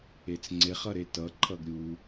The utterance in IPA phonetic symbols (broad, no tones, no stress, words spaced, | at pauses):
et͡sŋ͡ǀeχ ʌɾetʌ ǃʰʌɡɾʲu